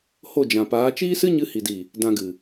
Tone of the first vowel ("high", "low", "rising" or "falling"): falling